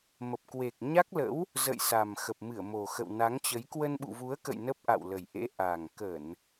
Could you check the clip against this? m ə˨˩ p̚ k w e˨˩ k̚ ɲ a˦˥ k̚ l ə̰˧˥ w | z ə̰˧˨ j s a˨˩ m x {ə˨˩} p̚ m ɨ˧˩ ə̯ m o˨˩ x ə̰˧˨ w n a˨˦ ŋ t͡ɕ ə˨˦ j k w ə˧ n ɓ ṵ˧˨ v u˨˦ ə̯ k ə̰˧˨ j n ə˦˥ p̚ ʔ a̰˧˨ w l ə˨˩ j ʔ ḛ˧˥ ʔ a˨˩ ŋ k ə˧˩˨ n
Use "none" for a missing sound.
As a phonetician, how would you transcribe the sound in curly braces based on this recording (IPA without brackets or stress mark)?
ə˨˩